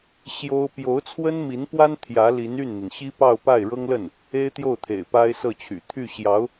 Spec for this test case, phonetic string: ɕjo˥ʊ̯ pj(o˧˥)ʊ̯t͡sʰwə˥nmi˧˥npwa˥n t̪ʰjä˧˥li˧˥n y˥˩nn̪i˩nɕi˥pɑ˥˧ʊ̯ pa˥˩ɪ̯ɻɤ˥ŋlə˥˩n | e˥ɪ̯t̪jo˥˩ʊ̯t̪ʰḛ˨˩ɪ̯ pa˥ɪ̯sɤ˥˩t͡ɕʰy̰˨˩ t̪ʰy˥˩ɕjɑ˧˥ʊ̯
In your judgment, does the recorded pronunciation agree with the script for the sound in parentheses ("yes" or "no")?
yes